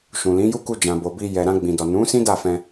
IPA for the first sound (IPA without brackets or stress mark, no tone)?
ʃ